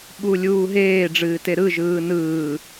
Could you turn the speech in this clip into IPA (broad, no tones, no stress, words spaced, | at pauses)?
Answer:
ɓulʲuːɦeː ɖ͡ʐɨːteɾɯ ʒɯːnɯː